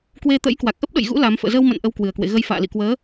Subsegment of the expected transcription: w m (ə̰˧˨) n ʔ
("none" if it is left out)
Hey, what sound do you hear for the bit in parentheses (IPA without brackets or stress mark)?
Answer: ə̰˧˨